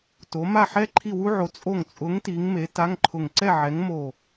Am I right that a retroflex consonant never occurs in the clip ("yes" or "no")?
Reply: yes